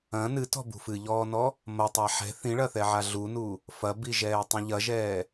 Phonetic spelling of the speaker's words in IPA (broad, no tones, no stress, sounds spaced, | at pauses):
ɐ̃ n ɨ t ɔ̤ b ṳ f ɨ ʎ ɔː n ɔ | m ɐ tˤ a ħ ɛ̤ θ ĩ ɭ ɐ θ ɛ ʕ a ɮ u n u | f ɐ b i ʒ ɛː tˤ ĩ ʎ ɐ ʒ ɛː